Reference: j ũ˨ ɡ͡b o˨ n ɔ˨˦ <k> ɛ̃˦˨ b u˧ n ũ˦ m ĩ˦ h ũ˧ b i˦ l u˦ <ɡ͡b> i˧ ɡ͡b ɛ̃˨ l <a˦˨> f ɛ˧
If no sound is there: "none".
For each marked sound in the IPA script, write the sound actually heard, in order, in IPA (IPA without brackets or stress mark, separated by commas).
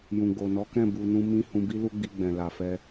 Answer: k, ɡ͡b, a˨